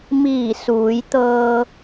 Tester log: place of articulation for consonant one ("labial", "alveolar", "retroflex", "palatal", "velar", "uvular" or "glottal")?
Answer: labial